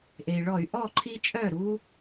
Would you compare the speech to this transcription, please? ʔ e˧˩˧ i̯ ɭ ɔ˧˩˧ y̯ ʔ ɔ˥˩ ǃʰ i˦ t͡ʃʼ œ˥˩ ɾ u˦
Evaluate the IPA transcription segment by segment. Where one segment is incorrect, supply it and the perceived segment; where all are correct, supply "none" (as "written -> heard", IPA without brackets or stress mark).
e˧˩˧ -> e˩